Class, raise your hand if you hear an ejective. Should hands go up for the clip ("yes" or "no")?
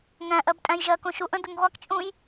yes